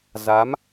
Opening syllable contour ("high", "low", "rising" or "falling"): rising